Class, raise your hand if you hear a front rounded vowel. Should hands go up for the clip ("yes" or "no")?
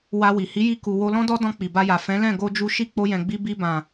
no